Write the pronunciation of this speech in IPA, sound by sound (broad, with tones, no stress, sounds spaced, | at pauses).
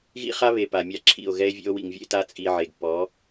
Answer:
ɣ ḭ˦ χ a˦ β e˨ p a˨ mʲ a˦˨ ǁʰ ḭ˦˨ o̯ ɣ ɛ˦ e̯ vʲ ḛ˦ o̯ w ḭ˨ ŋ vʲ ḛ˦ t a˦ t͡sʼ i˨ ʕ e˨ ɡ p ɔ˨˦